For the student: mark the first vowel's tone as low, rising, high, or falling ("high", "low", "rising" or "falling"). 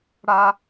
high